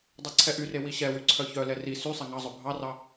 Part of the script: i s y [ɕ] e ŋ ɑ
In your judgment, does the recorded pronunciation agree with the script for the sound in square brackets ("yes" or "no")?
no